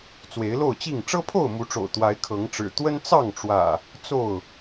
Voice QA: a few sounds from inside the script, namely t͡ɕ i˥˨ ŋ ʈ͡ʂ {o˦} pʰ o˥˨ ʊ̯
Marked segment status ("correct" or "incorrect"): incorrect